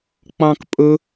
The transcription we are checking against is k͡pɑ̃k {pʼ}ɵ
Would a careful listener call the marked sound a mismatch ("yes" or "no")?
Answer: no